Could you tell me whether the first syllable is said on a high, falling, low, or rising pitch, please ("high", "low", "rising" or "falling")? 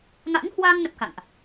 rising